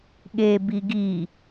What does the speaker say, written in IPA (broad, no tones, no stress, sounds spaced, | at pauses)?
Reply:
ɠ e b i ɡ i